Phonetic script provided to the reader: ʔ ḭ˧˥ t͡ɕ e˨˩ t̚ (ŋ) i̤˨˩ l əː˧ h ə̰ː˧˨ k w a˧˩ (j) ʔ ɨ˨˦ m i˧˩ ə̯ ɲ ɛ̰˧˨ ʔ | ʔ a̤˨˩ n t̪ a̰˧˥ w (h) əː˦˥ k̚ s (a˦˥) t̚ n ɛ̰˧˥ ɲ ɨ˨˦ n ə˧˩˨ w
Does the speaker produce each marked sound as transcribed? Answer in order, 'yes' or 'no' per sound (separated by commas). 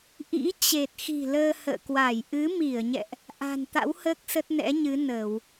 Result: no, yes, yes, no